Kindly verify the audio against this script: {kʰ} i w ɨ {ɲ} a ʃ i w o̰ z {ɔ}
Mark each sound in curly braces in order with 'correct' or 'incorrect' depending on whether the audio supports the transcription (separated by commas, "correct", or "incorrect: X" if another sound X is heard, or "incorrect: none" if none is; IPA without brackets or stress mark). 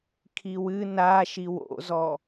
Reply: correct, incorrect: n, correct